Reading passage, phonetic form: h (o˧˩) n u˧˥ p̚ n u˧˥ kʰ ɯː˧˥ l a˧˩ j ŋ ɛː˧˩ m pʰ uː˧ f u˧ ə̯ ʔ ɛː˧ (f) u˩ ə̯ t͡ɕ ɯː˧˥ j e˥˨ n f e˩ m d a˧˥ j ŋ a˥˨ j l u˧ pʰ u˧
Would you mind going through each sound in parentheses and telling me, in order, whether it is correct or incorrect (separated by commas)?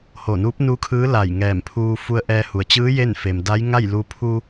correct, incorrect